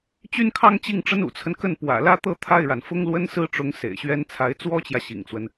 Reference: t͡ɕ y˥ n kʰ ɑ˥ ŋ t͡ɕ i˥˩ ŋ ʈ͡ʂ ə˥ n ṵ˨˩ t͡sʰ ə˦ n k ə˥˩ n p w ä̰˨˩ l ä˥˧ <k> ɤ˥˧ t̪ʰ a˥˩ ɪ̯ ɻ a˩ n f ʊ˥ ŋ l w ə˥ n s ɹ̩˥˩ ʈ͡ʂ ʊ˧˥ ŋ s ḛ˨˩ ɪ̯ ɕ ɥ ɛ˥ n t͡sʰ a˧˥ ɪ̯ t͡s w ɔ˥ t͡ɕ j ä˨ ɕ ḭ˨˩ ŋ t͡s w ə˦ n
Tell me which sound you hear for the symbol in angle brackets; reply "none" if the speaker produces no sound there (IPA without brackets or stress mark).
t̪